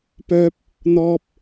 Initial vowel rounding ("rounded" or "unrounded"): rounded